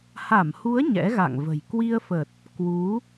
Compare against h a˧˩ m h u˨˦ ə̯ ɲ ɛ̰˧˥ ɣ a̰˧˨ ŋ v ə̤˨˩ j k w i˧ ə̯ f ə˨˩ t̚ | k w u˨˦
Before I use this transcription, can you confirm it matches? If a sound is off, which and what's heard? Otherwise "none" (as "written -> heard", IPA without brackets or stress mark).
none